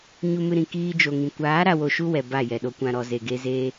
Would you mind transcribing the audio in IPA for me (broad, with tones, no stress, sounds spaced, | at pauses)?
ɲ u˧ m ɨ˧ ɾ ĩ˨ k iː˧ d͡ʒ o˨ ŋ ĩ˨ kʷ aː˨˦ ɾ a˧ w o˧ ʃ u˦ w ɛ˨ b a˦˨ j ɛ˨ ɗ o˧ kʷ ã˧ ɾ ɔ˨ z e˨ ɡ e˧ z eː˧